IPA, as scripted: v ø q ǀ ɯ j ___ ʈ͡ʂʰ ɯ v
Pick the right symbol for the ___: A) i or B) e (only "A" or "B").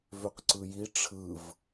A